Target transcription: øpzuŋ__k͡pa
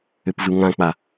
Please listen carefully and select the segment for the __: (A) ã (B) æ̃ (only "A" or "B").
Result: A